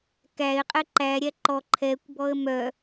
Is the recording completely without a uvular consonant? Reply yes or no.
no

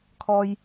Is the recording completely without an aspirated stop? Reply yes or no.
no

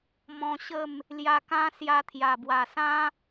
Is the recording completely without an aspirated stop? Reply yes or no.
no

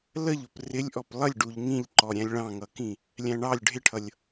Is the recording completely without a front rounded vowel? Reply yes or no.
yes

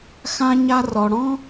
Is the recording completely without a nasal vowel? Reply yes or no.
no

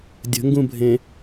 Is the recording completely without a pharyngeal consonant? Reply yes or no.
yes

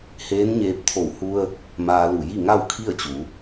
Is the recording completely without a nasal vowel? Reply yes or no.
yes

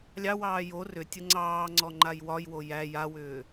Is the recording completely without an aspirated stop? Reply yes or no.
yes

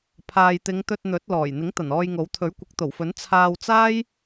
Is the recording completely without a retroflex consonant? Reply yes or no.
yes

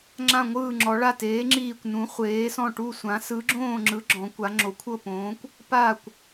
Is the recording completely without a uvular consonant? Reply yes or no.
no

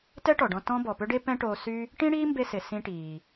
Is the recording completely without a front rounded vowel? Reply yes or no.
no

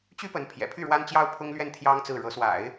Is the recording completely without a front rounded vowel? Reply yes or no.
no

